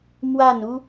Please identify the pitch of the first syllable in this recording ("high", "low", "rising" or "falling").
falling